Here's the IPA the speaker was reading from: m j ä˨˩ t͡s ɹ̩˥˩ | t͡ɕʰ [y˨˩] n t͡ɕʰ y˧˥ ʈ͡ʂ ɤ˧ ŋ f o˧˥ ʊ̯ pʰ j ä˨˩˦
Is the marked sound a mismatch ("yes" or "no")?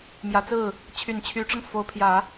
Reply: no